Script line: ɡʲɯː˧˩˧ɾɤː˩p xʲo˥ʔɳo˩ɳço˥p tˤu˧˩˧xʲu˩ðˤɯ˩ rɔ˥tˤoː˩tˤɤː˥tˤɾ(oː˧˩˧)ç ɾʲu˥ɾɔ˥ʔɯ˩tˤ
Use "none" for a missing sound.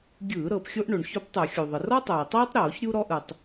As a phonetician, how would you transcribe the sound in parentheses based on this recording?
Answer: oː˧˩˧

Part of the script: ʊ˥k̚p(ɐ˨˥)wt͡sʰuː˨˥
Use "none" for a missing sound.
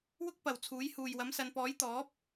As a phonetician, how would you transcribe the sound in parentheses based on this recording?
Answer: ɐ˨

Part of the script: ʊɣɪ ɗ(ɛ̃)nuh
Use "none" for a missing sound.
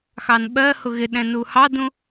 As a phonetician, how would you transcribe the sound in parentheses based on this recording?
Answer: ɛ̃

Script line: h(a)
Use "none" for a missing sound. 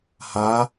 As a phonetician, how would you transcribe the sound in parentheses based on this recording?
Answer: a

